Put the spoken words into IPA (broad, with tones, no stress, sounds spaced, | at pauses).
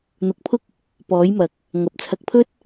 n̪ ʊ˨˥ k̚ pʰ ʊ˥ k̚ | p ɔː˨˥ j m ɐ˨˥ k̚ | ŋ ɐ˨ p̚ t͡sʰ ɐ˨˥ k̚ pʰ ɵ˥ t̚